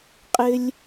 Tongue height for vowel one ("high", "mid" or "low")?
high